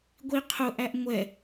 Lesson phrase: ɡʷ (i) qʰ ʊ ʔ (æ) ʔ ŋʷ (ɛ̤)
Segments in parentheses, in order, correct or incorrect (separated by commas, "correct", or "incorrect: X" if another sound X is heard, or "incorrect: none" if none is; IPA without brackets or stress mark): correct, correct, incorrect: ɛ